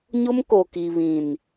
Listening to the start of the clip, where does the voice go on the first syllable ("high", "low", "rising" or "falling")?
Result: high